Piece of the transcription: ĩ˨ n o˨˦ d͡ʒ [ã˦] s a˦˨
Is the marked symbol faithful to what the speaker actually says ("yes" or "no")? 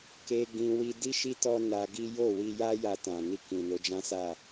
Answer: yes